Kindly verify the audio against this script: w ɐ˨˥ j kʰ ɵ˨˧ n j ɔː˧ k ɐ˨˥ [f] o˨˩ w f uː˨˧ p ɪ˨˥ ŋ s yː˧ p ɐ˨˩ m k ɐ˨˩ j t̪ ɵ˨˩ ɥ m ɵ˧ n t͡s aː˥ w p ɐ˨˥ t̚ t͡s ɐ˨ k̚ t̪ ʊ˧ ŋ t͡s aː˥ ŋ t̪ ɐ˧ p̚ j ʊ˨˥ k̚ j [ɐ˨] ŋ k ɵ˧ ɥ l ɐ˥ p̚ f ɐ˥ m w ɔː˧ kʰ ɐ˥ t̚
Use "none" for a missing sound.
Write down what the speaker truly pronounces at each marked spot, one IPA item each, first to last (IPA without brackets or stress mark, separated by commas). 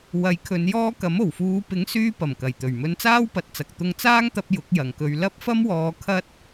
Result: m, ɐ˨